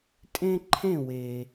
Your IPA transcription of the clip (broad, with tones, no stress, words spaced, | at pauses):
tʼẽ˦ ǃʰẽ˦˨we˨